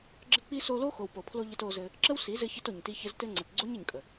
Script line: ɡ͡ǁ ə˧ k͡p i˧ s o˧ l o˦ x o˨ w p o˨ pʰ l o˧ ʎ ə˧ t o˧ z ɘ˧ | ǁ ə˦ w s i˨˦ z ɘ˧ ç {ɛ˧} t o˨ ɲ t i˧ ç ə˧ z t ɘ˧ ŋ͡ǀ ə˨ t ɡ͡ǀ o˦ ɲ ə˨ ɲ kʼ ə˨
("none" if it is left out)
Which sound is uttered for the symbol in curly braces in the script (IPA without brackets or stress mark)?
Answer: ɘ˧